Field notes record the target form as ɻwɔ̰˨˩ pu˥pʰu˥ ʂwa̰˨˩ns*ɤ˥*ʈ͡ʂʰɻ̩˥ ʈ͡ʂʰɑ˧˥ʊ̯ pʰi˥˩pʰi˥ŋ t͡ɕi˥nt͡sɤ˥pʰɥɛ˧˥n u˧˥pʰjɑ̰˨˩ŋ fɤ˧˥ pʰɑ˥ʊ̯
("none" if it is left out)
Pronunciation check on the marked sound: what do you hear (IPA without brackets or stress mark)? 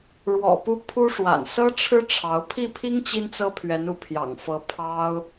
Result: ɤ˥